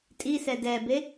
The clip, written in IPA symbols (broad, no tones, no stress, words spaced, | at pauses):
tʼisɛ dɛbe